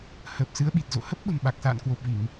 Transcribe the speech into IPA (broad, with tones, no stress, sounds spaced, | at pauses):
h əː˨˩ p̚ s ɨ˨˦ ə̯ ɓ i˨˩ t̚ z o̰˧˨ h ə˦˥ p̚ ɓ ə̤˨˩ m ɓ a˨˩ k̚ s a̰ː˧˨ n k w o˨˩ p̚ v i˧˩˨ ŋ